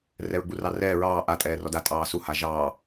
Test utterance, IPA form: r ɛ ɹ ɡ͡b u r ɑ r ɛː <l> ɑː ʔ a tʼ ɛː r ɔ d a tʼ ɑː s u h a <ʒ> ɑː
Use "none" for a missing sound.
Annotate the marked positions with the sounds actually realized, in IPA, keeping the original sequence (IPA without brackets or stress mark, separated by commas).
ɹ, ʒ